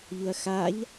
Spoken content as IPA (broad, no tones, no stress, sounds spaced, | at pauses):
ʎ u ɐ̯ x a ʎ